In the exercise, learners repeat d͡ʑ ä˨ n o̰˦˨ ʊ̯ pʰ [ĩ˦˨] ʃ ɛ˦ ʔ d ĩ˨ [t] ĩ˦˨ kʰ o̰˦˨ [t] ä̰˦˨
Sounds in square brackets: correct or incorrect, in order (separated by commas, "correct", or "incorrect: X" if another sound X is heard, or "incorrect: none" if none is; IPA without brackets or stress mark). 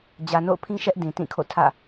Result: incorrect: ĩ˦, correct, incorrect: tʰ